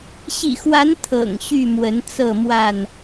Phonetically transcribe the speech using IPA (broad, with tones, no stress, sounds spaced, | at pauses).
ɕ ḭ˨˩ x w a˨˦ n t̪ʰ ɤ̰˨˩ ŋ ɕ y˥˨ m w ə˨˦ n t͡s ɤ˥˨ m w a˥˨ n